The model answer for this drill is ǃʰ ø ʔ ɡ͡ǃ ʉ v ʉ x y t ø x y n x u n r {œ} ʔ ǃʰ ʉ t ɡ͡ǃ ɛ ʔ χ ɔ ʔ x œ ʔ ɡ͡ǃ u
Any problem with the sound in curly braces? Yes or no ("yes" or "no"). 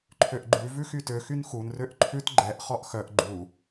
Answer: yes